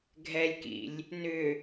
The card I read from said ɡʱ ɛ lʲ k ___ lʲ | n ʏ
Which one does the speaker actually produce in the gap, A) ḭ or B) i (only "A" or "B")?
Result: A